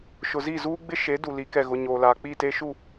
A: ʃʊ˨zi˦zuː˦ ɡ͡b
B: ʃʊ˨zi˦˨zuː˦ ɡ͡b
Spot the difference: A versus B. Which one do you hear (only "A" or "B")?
B